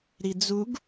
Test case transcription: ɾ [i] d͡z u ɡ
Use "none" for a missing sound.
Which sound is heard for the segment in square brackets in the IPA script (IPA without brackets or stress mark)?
i